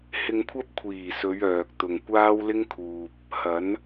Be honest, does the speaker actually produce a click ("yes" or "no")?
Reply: no